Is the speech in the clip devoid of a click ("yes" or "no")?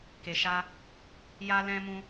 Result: yes